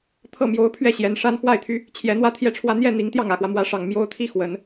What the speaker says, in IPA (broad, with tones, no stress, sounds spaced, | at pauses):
t̪ʰ ɤ˥˩ m j o˧˥ ʊ̯ pʰ ɥ ɛ˥˩ ɕ j ɛ˧˥ n ʂ a˥ n x w a˥˩ ɪ̯ t̪ʰ y˧˥ | t͡ɕʰ j ɛ˧˥ n̪ w ä˥ t̪ʰ j ɛ˥˧ ʈ͡ʂʰ w ä˥˧ n̪ j ɛ˥˩ n̪ i˧˥ ŋ t̪ j ɑ˥˩ ŋ ä˨˩ x w ä˦ m w ä˧˥ ʂ ɑ˨˩ ŋ m j o˥ ʊ̯ t̪ʰ i˥ x w ə˨˩˦ n